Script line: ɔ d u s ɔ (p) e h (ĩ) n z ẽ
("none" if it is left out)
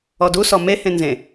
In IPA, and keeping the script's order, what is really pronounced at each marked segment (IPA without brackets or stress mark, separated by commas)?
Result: m, ẽ